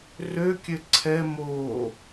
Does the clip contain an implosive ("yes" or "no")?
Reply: no